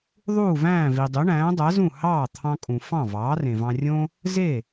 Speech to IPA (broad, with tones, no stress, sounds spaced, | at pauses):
ðˤ uː˥˩ v æ̃ː˥˩ v i˩ dˤ y˩˥ ɳ æ̃ː˩˥ dˤ æ˩˥ z ũ˥˩ h ɑː˥˩ t̪ʰ ɑ̃˧ kʼ ũ˩ f ɑ̃˥˩ v ɑː˩˥ r ẽ˩ v ɑ̃˧ rʲ õ˥ | z e˥˩